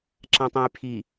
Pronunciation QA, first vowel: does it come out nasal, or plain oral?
nasal